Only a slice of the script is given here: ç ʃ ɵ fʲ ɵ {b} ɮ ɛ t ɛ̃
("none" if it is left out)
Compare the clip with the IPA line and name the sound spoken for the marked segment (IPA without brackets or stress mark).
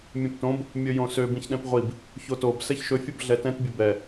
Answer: b